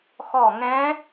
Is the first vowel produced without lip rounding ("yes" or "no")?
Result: no